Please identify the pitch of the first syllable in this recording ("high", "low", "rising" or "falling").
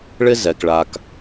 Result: high